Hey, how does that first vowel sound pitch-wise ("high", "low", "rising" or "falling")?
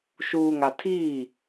low